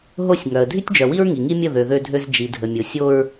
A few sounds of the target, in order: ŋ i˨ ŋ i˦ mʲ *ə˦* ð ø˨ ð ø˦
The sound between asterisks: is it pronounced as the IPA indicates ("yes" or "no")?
no